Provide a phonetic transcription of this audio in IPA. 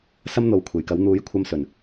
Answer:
s ɐ˥ m n̪ o˨˧ w kʷʰ e˨˩ j k ɐ˨˥ w n̪ uː˨˥ j kʷʰ ɐ˧ m s ɵ˨˩ n

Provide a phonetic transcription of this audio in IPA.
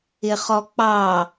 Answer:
ɪ χ ɔ k͡p ɑ

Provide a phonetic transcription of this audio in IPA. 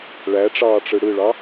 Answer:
ɭ æ ʈ͡ʂ ɑː ʈ͡ʂ ɯ ɽ ɯ ɭ ɑ

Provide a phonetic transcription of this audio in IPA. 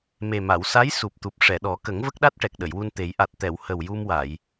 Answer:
m e˨˩ m a˨˩˨ w s a˧˥ j s u˨˩ p̚ t̪ u˨˩ p̚ ʂ ɛ˨˩˨ ɗ ɔ˨˩˦ k ə˨˩˦ ŋ v ə˦˥ k̚ ɗ a˦˥ t̚ ʈ ɛ˨˩ k̚ ɗ ə˨˩˨ j w u˧ n t̪ e˨˩˦ j ʔ a˨˩ t̚ t̪ ɛ˨˩˨ w h ə˨˩ w j u˧ m w a˨˩˨ j

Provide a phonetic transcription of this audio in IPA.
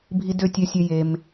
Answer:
bʱ i˧ d ø˧ tʲ ø˧ sʲ ø˦ j e˧ m

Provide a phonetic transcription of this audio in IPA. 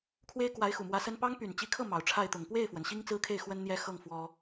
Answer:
kʰ w e˥ ɪ̯ k w a˧˥ ɪ̯ x u˨˩ m w ä˧˥ s ə˥ n p ɑ˥ ŋ p y˨˩ n t͡ɕ i˧˥ kʰ ɤ˥˩ m ɑ˨˩ ʊ̯ ʈ͡ʂʰ a˥˩ ɪ̯ t̪ ʊ˨˩ ŋ p w e˥˩ ɪ̯ f w ə˩ n ɕ i˥ ŋ t͡s ɹ̩˥ kʰ e˥˩ ɪ̯ x w ə˥ n n̪ j ɛ˥ x ɤ˥˩ ŋ f w ɔ˥

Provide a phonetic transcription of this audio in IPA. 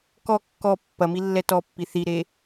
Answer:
k ɔ kː ɔ pː ɐ m i lː ɛ t ɔ pː i θ i ɾ e

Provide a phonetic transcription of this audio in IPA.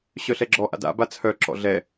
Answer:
ɕ œ ɬ ɛ ɡ͡ǁ ɔ ʔ a̰ d a̰ b a t͡sʰ œ ǁ ɔ̰ ɮ ɛ

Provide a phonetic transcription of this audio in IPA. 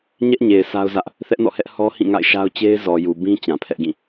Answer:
ɲ ɛ˦ ʔ ɲ e˨ ɪ̯ sʰ a˦ ʊ̯ z ä˦ ʔ | θ ɛ˦ ʔ n ɔ̰˦˨ h ɛ˦ ʔ h ɔ˦ h ĩ˦˨ ŋ a̰˦˨ ɪ̯ ʃ a˦ ʊ̯ t͡ɕ e˦ ɪ̯ z ɔ˨ j u˨ b ĩ˦ t͡ɕ ã˨ pʰ ɛ˦ ʔ ɡ ĩ˦˨

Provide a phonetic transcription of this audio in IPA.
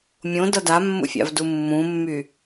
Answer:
mʲ õ d ʌ d a mː ṵ fʲ a̰ v d u mː ũ mː y

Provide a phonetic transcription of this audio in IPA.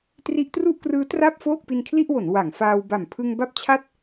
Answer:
t r i˦˥ ʔ t r u˥˩ ʔ k r ɯː˦˥ t r a˥˩ p̚ f oː˥˩ k̚ p i˧ n kʰ l i˥˩ ʔ w o˩˦ n w a˩˦ ŋ f aː˧ w b a˨˩ m pʰ ɯ˧ ŋ b a˥˩ p̚ t͡ɕʰ a˥˩ t̚

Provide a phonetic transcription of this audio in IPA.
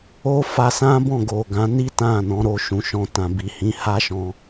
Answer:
o˦ f a˧ s ã˦ b ɔ̃˦˨ ɡ o˨ ɡ ã˨˦ n i˦ t ã˦˨ n ɔ̃˨˦ ɾ o˧ ʃ ũ˨ ʃ ɔ̃˧ t ã˨ b i˨ h ĩ˨˦ h a˦ ʃ ɔ̃˧

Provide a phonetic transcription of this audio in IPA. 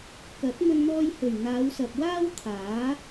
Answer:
k ɐ˨˥ t̚ m ɵ˧ n n̪ ɔː˧ j h ɵ˨˩ ɥ n̪ aː˨˧ w s ɐ˨ p̚ w aː˥ w t̪ʰ aː˨˥

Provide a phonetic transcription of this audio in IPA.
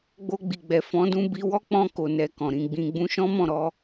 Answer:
ɡ͡b o˧ ɡ͡b i˨ ɡ͡b ɛ˨ f ɔ̃˨˦ d ũ˧ b i˧ w ɔ˦ k͡p ɔ̃˧ k o˨ n ɛ˨ k ɔ̃˨ ɾ ĩ˧ ɡ͡b ĩ˦ ɡ͡b ũ˧ ʃ ɔ̃˦ m ɔ̃˦˨ ɾ ɔ˧

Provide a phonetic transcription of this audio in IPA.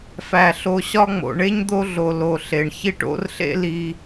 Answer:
f æ˩ ɬ o˨ ɕ ɒ˦ ŋ͡m o̰˩ ɳ e˥ ɲ d̪ o˦ ɮ o˨ l o˨ ɬ e˩ ɳ ç i˥ ʈ o̰˥ r ɬ ḛ˥ l i˦

